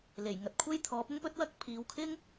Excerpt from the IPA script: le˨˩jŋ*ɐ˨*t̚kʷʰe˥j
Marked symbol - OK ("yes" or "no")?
yes